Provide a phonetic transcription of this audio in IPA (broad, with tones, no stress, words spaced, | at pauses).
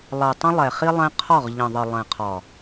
lˠɛ˨tˤə̃˦ lˠɛ˨χi˦lˠɛ̃˦ qʰɒ˦˨ʁʎə̃˨ðˤə˨ lˠɛ̃˨qʰɒ˨